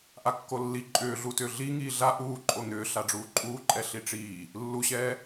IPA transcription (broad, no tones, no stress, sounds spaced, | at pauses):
ʔ a kː o lː i ǃʼ ʏː ɮ u t ʏː ɮ i ŋ iː ɮ a ʔ uː ǃʼ o n̪ ʏː ɬ a ɖ͡ʐ uː ǃʼ uː ǃʼ ɛ ɬ i ʈ͡ʂ iː | lː u ɕ ɛː